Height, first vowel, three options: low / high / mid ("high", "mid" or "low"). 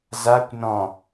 low